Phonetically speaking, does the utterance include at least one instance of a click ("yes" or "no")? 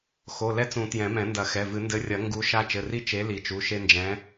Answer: no